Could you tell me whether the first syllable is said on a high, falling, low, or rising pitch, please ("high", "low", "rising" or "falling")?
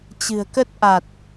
low